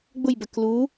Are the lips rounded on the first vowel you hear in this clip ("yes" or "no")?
yes